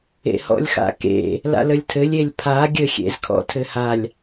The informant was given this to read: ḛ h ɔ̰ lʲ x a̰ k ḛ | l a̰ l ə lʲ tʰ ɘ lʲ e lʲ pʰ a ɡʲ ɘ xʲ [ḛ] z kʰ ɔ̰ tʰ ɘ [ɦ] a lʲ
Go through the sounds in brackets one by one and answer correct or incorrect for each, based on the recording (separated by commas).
correct, incorrect